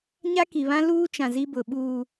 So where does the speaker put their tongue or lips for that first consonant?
palate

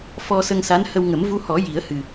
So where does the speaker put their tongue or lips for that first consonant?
lips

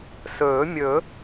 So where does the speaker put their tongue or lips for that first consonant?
tongue tip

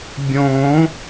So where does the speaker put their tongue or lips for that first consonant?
lips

